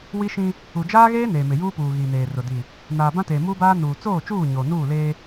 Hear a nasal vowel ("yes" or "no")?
yes